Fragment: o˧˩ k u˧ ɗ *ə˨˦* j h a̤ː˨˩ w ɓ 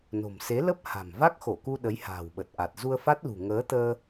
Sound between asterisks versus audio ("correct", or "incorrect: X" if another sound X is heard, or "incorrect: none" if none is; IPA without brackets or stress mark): correct